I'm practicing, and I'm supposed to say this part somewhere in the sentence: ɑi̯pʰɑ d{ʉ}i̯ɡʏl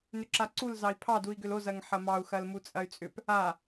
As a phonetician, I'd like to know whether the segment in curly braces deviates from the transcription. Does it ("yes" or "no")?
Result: yes